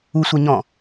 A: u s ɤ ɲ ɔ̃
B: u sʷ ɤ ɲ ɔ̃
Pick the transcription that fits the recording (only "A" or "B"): B